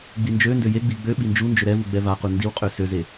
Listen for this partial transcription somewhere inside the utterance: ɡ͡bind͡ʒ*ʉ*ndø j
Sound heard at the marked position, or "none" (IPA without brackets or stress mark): ø